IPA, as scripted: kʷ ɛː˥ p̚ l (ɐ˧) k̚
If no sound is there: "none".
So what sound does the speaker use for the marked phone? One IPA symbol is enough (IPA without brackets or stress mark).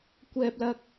ɐ˥